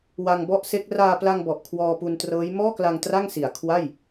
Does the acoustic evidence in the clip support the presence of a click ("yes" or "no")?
no